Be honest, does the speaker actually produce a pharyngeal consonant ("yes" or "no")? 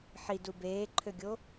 yes